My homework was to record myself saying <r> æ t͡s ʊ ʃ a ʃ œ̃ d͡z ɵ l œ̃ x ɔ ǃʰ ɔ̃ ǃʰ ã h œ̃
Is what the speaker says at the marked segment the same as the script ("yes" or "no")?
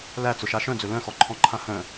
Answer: no